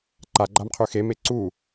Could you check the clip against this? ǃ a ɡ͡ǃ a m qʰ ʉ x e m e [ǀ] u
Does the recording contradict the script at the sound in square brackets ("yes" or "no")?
no